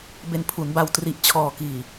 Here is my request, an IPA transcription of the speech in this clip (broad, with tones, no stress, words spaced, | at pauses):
be˧npʰu˩˦nba˧w tri˨˩ʔt͡ɕʰɔː˨˩kiː˨˩